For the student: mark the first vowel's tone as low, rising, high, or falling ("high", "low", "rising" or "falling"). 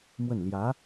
falling